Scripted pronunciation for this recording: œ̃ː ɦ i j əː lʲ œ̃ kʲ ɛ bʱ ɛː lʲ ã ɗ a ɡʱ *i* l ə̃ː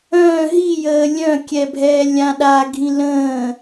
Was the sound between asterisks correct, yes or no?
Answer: no